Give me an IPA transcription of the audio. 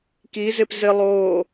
k i z ɪ p z ɪ lˠ oː

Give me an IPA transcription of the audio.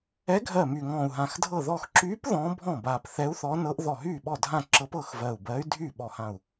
ɛ˧˥ ɡʱ ɜ˧˩ m yː˧˩ ŋ ɔ̃ː˧˩ u̯ ɦ ã˧˩ x dʱ ɤ˥˩ ð ɔ˥˩ x ǁ yː˧˥ p ð ɔ̃ː˧˥ bʱ ɔ̃˥˩ b aː˧˩ p θ ɛ˧˥ u̯ θ ɔ˧˥ n ɤ˧˥ ʔ ð ɔ˧˩ ɦ yː˥˩ ɓ ɔ˥˩ dʱ ã˥˩ ǁ ɤ˧˥ p ɤ˥˩ x v ɜː˧˩ u̯ b ɜː˧˥ y̯ dʱ yː˥˩ ɓ ɔ˧˩ h ã˧˩ u̯

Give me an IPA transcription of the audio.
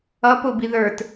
ʌ p ʊ b i ð ə˞ t

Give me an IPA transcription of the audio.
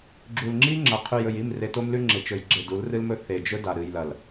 ɡ͡ǁ u˨ l ŋ͡ǁ i˦ ŋ͡ǁ ɐ˨ qʰ ʉ˨ j ɵ˨ j i˦˨ m r e˨ t o˦ m l ʉ˦ ŋ͡ǁ e˨ t͡ʃ ɵ˨ j ɡ͡ǁ e˨ d u˨˦ l r ɨ˦ l m ɵ˦ θ e˨ d͡ʒ ɵ˦ d a˨ ɾ ɨ˨ j l ɐ˨ l

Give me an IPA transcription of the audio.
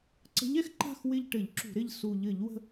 ǀ ə̤˨˦ ʎ ɛ˨˦ x ǃ a̤˦˨ x w ɪ˦˨ ʎ ʈ ɘ˧˩˧ ʎ ǁ ṳ˧˩˧ ɾ ɪ˦˨ ʎ s u˨˩ ʎ ɘ˧˩˧ ʎ w ə̤˦˨

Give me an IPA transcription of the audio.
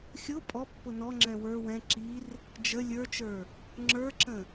xʲ ʊ pʼ ɔ pː ʊ n ɔ ŋ͡ǁ ɛ̃ w ə˞ w ɛ̃ ǁ i r | d͡ʒ ə lʲ ə˞ t͡ʃ ə˞ | ŋ͡ǁ ə˞ ǁ ə̃

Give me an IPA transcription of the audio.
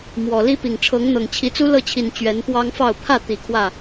m w ɔ˨˩ l i˦ p i˨˩ ŋ ʈ͡ʂʰ ɤ˨˦ ŋ n̪ ɤ˨˩ ŋ t͡ɕʰ i˨˦ t͡s u˦ l ɤ˥˨ t͡ɕʰ i˨˩ n t͡ɕ ɥ ɛ˨˦ n p w ɑ˦ ŋ f ɑ˥˨ ʊ̯ pʰ ä˥˨ t̪ i˨˩ kʰ w ä˥˨

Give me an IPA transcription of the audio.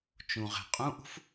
t͡ʃ ũ ʁ ɛ̤ qʼ ũ ʔ ṳ f

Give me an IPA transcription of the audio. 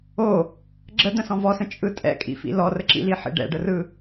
o | ɡ͡ǁ ə d̪ ə̃ s ɔ̃ v ɔ s ə̃ t͡ʃʼ ɯ tʼ ɛ̰ kʼ ḭ f ḭ l ɔ r ə ǁ ḭ l i ħ ḭ ɖ ɛ̰ ɖ ə r ɯ

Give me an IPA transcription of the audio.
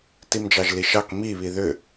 t i m d͡ʒ ɑ ʒ l i ʃ ɑ k m i β i ð ʏ

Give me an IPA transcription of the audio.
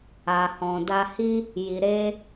a˨ h ɔ̃˨ d a˧ h i˦ | j i˨ ɾ eː˧

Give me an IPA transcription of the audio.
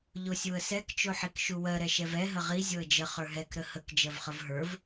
ʎ o sʲ u ə̯ s ɛ k t͡ʃ o ħ i k ʃ u w ɜ ɾ ɛ ʃ ɛ v ɛ ɦ ə ʁ i zʲ o ə̯ d͡ʒ ə χ ə˞ ɦ ɛ k ɾ ə h ə k d͡ʒ ɜ v χ ə v ɦ ə˞ v

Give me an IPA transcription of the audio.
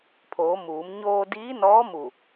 pʰ oː˩˧ m uː˩˧ m ɲ oː˧ d iː˧˥ n ɔː˧˥ m u˧˩

